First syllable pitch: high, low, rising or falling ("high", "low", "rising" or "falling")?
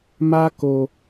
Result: high